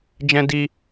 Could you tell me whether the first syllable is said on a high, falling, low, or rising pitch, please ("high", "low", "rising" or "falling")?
high